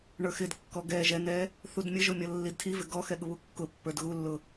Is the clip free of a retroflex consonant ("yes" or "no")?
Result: no